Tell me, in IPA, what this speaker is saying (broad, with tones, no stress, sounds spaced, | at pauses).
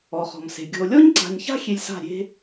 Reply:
ɔ˨ χ ɔ̤˨ m s e̤˨ ɡʲ ɔ̤˨ o̯ lʲ ɔ˦ ɲ ǀ a̤˨ ɲ ç a̤˦ xʲ e˧ lʲ s a̤˦˨ ɾʲ e̤˦